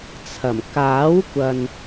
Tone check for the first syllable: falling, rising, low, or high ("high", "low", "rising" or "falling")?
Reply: low